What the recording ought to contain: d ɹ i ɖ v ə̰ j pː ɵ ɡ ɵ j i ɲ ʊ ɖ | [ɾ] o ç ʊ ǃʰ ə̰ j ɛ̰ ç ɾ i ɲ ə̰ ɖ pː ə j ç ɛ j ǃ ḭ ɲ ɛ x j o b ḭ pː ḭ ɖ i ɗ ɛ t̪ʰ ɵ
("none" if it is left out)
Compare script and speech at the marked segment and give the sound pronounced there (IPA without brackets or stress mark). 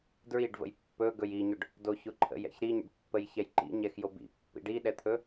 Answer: d